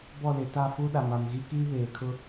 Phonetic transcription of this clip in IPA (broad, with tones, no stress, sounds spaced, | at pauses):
b ɔ˦˨ l ɪ˨ t a˦˨ f u˦ ɗ a˨ m a˨ m ɣ i˦ k iː˦ β eː˨ kʰ ʊ˦